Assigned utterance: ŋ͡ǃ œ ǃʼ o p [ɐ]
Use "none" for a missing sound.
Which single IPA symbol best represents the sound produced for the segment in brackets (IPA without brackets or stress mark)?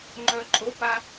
a